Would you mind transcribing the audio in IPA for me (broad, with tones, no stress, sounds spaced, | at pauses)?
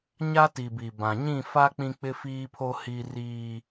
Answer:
ɲ a˦ t i˨ b i˨ b ã˨ ɲ ĩ˦˨ f a˦ k͡p ĩ˦ k͡p ɪ˦ f iː˦ pʰ o˦ h i˦ r iː˦